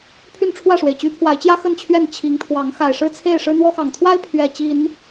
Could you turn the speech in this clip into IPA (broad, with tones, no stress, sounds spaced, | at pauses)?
pʰ y˥˨ n ʈ͡ʂʰ w ä˥˨ ʂ w e˩ ɪ̯ t͡ɕ y˨˦ pʰ w a˨˦ ɪ̯ t͡ɕ j ä˦ x ə˥˨ n t͡ɕʰ ɥ ɛ˥˨ n t͡ɕʰ i˨˦ ŋ t̪ʰ w ɑ˨˦ ŋ x a˨˩ ɪ̯ ʂ ɻ̩˥˨ t͡sʰ e˥˨ ɪ̯ ʂ ɻ̩˦ n̪ w ɔ˦ x ɑ˨˩ ŋ t̪ʰ w a˦ ɪ̯ pʰ ɥ ɛ˨˩ t͡ɕ i˨˦ n